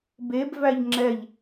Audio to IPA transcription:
beb væʎŋ͡ǁɛʎ

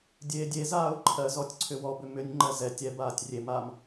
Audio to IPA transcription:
dʲeːdʲezaːʊ̯ ǃʰɜzɔtʲ ǀʰʏwɔbʏ mʏnʲŋ͡ǃɜ zɛ tʲɛ baːtʲrʲemam

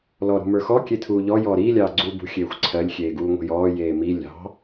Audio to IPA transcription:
lɔɾṳmə˞xɔ kʲetʰuːʎɔ jɔːɾiː lʲɑːɡ͡ǀuːbṳ xʲeːxʷǀʰɜlʲ xʲeːɡuːŋʷe̤jɔː jeːmi lʲɑ̤

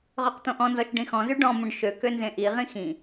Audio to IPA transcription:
ʁøqt̪õʔɔ̃nzɔʃ ɖĩxɔ̃zy ɖɔ̃mõɖ ʃøkø nzẽʔiʁĩ xĩ

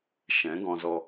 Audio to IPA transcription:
ʃɛ̃˨˦ɡɔ̃˧zɔ˧

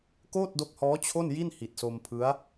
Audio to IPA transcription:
koː˥˩t̚do˦˥k̚hɔː˦˥ t͡ɕʰo˥˩nji˥˩n hi˨˩t̚so˧mpʰɯ˦˥a̯

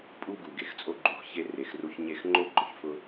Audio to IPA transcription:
pʼu˧ɡu˩ ɡe˩xt͡sʼo˧ɡ͡ǃu˩˥x çe˧ re˩xru˧çɲe˥˩x ŋ͡ǃo˥ɡ͡ǃʊ˩ç fʊ˥

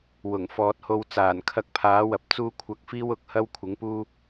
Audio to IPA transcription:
wʊ˨˩ŋfɔː˨t̚ho˧w t͡saː˨˩nkʰɐ˧k̚pʰaː˨˥ wɐ˨˥p̚t͡suː˥ kʷʰɐ˧k̚ fiː˥wʊ˨˥k̚hɐ˥w kʷʰɪ˨˥ŋpuː˥

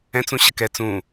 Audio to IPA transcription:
ɛ̃t͡sũ ɕəkɛ t͡sũ

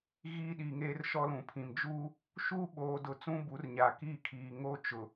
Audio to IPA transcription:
ɣiː˦ɗiː˨ŋeː˦r ʃɔ˦lũ˨pʰĩ˨m d͡ʒuː˦ | ʃuː˦ɓoː˨dʊ˨ t͡sũ˦bu˨˦rɲa˨ kiː˦˨kʰiː˨ŋoː˦ t͡ʃʊ˨

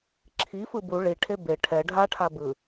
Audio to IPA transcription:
ǁʰifɯ bu ɭiʈʰe be ʈʰɛ ɖʱaʈʰa bɯ

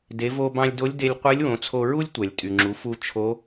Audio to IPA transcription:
de˩˧vo˧bɑ̃˧lʲdo˧˥lʲ de˧lʲ qʷe˧˥lʲwõ˩˧t͡sʰo˧ɹu˥lʲ tʷæ˩lʲtʼy˩ŋ͡ǁu˩˧fu˧ t͡ʃʰo˧˥

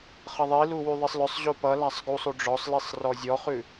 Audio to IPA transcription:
χʌðˤilu wyðˤisˤlœsˤʑo pʌlasˤ ɡusˤ uɖ͡ʐɔsˤlisˤ rɔzʲɔχʉ

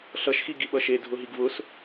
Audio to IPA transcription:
ɬʌʃxi ɡiɓʌʃe dʱʊɦiɡvʊs

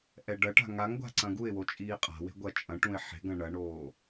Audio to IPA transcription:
ʔɛɖɐʈa̤ ŋaŋɡʷa̤ ǀɐ̃ɡuɪ̯wo t͡ʃʼiːqʼa̤we̤ ɡʷɐt͡ʃʼɐ̃ʈũɪ̯ ħe̤ɡɐ̃ ɳɐɳoː

